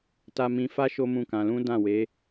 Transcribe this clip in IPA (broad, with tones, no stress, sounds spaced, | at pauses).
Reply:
t a˧ m ĩ˧ f a˦ ʃ o˦ m ũ˦˨ k ã˧ l ũ˦ d ã˦˨ w e˨˦